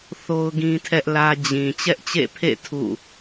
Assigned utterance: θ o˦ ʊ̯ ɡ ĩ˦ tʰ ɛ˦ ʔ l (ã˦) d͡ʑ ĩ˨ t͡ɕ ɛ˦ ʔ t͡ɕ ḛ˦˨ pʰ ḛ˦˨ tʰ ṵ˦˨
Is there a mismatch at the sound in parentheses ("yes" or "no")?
yes